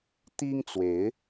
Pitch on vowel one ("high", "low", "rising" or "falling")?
high